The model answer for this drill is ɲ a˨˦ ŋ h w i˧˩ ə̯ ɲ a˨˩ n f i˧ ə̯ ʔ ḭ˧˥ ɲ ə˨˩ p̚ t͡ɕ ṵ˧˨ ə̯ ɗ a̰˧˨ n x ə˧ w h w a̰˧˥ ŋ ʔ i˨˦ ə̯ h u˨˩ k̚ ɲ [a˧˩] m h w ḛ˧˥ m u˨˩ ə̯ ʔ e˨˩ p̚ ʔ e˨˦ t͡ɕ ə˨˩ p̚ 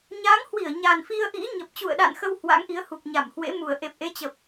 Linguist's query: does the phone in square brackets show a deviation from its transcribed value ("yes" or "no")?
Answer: no